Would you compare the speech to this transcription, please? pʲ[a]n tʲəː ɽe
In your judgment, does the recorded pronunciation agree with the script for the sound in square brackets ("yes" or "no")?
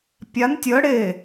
yes